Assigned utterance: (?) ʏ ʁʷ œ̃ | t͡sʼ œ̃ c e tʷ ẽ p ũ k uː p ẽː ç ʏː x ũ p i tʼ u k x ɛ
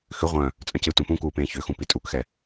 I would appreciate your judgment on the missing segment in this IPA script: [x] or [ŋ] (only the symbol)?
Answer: x